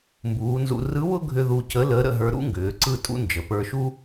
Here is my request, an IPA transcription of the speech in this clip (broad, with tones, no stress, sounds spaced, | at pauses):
m b uː˩˧ n z ṵ˧ r ɯ˧˥ w ʊ˥ ɡʱ ʏ˧ ð u˧ c ə˧˥ l əː˧˥ ɾ ə̰˧ ɦ ə˞˧ ɾ ṵ˥ ŋ ɡ ʏː˩˧ ǀ ɯ˥ tʼ ṵ˥ n d͡ʒ ə˩˧ p ə˞˧ ʃ u˥